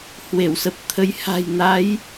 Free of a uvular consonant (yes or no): yes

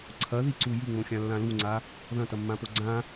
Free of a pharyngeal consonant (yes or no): yes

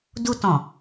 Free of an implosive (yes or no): yes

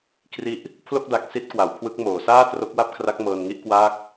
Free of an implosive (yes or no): yes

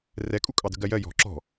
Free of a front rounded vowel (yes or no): yes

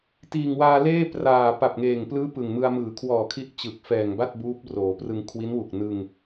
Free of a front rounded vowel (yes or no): yes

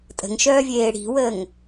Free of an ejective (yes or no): no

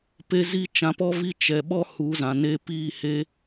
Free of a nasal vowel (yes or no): no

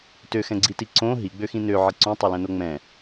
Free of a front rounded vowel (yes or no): no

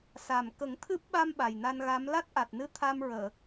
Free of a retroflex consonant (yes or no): yes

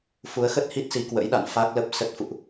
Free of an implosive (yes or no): no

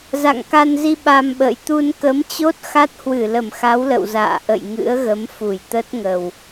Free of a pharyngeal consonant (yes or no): yes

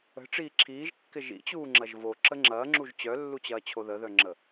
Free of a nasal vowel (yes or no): yes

